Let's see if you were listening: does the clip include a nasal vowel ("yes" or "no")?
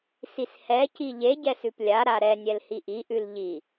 no